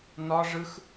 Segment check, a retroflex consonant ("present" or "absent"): present